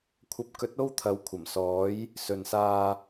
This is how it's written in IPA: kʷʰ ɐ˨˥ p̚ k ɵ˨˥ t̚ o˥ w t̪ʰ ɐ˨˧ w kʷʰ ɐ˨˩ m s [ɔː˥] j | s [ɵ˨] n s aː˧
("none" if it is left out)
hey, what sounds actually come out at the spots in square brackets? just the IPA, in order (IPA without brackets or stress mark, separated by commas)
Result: ɔː˨˥, ɵ˨